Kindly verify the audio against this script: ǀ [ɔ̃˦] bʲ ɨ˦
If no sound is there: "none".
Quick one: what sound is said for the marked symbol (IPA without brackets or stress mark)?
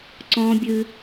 ɔ̃˦